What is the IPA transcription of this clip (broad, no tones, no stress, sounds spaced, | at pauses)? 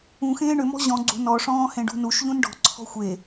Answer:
ũ x ẽː ɳ ʏ m ɔ̤ ʑ ɔ̃ ɡ͡ǀ ṳ n ɔ ʂ ɔ̃ː h ẽ ɖ ṳ n u ʃ ʎ ũ n ɖ ɔ̤ ǀʰ ɔ̤ xʷ e